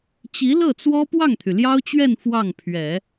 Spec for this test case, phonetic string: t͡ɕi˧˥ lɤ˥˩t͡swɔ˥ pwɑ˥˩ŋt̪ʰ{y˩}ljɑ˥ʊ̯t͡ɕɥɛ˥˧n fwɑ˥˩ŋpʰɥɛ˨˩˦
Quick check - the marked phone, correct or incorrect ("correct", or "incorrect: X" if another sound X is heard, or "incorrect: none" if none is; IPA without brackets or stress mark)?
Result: correct